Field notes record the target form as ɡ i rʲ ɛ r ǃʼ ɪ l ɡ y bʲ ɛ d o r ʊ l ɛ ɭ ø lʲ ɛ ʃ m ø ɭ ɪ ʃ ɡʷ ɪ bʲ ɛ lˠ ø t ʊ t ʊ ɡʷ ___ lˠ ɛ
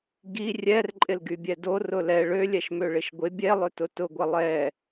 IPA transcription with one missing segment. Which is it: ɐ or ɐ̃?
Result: ɐ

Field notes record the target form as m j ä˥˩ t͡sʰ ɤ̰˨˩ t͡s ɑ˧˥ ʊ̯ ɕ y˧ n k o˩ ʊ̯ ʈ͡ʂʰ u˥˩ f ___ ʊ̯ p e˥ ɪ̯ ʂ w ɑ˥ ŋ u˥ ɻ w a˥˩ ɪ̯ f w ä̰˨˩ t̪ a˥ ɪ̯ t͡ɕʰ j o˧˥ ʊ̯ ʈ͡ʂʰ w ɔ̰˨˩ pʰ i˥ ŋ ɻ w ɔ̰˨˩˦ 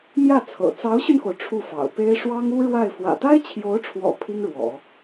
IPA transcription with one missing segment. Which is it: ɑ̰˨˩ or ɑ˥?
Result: ɑ̰˨˩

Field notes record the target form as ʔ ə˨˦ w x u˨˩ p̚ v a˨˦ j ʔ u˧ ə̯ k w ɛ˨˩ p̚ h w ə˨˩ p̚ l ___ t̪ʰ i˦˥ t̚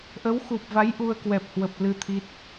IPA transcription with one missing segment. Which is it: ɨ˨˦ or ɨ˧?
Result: ɨ˧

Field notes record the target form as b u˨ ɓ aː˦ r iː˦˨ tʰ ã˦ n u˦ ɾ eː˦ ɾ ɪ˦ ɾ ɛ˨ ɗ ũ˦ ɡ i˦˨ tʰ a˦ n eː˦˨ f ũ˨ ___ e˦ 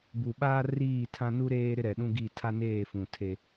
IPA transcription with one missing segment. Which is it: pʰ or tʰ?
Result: tʰ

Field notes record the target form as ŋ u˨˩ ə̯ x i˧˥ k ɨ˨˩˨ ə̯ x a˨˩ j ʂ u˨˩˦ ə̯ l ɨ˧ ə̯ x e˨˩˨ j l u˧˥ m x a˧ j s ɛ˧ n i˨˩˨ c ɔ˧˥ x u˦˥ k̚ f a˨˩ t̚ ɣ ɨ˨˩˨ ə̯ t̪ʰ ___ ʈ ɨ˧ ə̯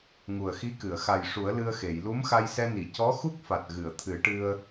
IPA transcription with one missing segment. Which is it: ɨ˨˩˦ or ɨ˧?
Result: ɨ˨˩˦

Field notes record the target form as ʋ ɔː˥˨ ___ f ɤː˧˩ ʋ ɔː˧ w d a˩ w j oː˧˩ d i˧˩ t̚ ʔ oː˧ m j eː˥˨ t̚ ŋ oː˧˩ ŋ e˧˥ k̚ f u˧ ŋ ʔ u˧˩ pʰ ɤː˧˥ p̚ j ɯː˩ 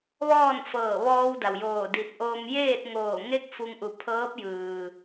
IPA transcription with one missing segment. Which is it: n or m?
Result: n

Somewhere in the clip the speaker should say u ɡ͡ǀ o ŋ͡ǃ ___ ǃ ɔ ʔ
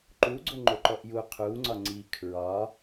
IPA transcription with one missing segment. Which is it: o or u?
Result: o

